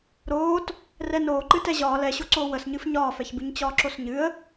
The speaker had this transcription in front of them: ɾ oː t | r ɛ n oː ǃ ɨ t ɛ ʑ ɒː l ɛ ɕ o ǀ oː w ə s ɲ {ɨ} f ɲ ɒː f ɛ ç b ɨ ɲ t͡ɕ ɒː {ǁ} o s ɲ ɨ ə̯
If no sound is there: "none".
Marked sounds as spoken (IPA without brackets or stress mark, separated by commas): ɨ, ǁ